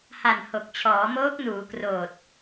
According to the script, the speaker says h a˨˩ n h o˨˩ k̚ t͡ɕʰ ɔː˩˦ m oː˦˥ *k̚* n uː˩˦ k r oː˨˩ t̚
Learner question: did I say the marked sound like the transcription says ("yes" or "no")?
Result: yes